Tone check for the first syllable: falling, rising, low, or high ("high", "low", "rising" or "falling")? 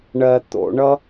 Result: low